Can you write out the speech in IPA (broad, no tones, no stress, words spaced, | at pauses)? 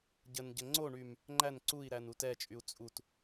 ɟənɟə ŋ͡ǀoɳym | ŋ͡ǃæn ǀui̯ɾæn utɛt͡ʃʼyu̯ t͡sʼut